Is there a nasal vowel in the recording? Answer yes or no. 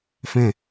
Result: yes